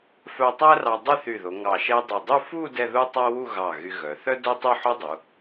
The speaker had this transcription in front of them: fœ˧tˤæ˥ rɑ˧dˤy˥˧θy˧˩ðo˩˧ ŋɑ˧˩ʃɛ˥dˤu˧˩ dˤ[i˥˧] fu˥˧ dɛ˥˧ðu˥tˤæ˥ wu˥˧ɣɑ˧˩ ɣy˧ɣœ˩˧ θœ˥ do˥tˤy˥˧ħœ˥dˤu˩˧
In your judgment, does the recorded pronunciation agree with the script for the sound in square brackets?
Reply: no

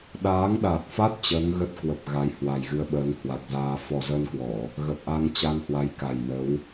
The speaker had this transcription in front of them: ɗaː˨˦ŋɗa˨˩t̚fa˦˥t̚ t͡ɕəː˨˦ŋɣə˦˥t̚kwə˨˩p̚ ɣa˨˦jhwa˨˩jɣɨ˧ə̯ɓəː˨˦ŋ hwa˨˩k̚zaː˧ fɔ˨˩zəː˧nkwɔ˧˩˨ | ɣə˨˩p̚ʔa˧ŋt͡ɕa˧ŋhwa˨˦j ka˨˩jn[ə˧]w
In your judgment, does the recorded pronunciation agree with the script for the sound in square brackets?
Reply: no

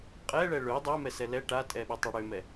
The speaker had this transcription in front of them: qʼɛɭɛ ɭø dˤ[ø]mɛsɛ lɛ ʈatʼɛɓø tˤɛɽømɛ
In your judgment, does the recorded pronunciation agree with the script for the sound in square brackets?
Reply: no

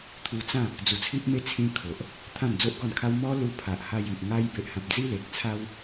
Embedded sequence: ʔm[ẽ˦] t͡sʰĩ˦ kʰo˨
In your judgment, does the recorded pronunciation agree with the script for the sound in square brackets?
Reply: no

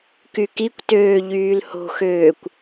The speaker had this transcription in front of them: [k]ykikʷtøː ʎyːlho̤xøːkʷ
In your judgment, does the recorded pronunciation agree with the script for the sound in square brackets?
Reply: yes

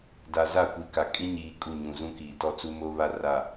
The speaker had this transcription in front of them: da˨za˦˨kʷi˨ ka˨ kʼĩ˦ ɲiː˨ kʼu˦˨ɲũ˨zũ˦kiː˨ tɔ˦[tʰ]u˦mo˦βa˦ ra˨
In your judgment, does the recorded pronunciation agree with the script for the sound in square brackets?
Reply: no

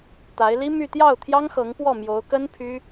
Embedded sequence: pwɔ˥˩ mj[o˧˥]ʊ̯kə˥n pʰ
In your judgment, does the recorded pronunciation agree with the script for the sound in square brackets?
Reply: yes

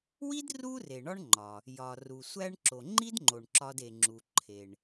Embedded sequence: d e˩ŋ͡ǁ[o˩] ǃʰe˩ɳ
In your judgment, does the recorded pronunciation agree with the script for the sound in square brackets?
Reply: no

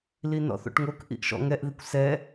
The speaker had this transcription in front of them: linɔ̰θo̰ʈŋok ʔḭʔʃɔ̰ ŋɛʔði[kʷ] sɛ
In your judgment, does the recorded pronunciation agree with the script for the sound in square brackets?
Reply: yes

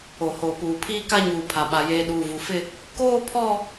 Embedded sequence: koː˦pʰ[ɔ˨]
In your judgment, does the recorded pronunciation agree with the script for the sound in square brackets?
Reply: no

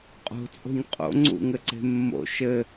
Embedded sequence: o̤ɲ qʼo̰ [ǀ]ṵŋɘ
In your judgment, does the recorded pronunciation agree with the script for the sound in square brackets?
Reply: no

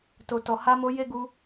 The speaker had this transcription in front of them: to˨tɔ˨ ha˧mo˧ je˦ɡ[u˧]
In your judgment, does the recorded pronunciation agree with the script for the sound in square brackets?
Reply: yes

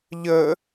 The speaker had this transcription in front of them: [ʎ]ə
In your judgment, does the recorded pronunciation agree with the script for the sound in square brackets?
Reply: yes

